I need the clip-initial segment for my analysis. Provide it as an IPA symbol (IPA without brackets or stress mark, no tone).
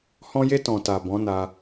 h